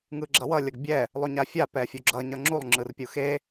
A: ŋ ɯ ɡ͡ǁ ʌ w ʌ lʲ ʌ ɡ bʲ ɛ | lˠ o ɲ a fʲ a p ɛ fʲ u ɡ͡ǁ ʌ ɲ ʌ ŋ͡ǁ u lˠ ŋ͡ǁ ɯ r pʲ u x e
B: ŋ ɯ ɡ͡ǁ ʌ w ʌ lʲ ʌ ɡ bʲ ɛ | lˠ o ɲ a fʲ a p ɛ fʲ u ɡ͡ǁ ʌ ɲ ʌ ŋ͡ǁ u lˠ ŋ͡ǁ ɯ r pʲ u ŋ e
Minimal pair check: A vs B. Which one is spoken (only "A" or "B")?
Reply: A